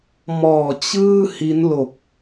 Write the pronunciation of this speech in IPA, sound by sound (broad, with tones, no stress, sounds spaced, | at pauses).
m ɔː˨˩ t͡ɕ ɯː˥˩ h i˦˥ n l o˨˩ k̚